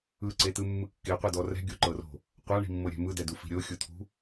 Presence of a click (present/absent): present